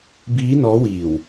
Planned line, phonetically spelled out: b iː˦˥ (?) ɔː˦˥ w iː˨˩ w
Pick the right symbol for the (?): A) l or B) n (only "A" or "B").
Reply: B